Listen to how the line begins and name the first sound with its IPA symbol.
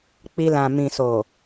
k͡p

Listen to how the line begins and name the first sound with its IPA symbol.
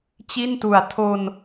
t͡ɕ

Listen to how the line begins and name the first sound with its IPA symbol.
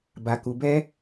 b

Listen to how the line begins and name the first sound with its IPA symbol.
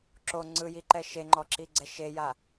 ǁ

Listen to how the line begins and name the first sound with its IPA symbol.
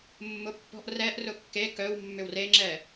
mː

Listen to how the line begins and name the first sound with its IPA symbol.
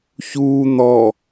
ç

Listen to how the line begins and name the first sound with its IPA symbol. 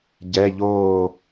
ɟ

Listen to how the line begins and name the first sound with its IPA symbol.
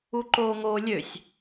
u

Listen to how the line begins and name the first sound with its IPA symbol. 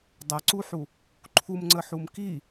dˤ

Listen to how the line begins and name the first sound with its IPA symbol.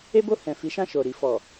e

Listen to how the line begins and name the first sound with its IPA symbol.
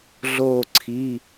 ɮ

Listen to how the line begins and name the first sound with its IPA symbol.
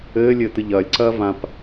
ɘː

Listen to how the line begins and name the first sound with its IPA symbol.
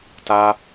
t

